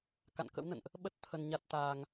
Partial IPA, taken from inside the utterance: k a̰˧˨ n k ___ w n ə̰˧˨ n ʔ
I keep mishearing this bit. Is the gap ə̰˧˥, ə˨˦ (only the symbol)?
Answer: ə̰˧˥